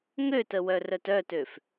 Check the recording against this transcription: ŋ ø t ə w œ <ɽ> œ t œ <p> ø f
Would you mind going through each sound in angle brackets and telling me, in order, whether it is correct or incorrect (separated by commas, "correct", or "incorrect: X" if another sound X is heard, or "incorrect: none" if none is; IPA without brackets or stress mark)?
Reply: incorrect: r, incorrect: t